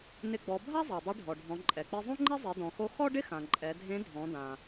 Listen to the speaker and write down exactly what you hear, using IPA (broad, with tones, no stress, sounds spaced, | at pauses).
n ɪ˧ ɡ͡b ɔ˩˧ bʱ a˥ zˤ a˩ dˤ i˧˥ ɖʱ ɔ˩ ɖʱ ɔ̃˩˧ ǃʼ ɛ˩ k͡p i˧ zˤ õ˥ ŋ͡ǃ ɛ˥ zˤ e˩˧ d ɔ̃˩ x o˧ x ɔ˥ ɖ ɪ˥ x ã˩ ǃʼ ɛ˩˧ dʱ ẽ˧˥ dʱ ɔ̃˩˧ d ã˩